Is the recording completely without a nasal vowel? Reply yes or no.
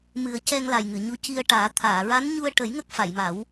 yes